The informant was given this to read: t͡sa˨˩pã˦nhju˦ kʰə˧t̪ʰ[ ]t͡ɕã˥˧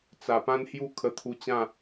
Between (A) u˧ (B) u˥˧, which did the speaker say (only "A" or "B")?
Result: A